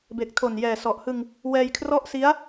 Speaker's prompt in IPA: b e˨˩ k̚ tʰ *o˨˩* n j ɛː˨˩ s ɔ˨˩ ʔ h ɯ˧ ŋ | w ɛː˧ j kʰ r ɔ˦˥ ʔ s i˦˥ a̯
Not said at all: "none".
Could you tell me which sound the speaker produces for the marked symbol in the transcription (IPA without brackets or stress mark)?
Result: o˨˩